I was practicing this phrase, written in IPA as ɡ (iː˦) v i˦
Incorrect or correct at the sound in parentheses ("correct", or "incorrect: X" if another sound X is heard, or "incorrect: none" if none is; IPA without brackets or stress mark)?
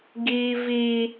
incorrect: i˦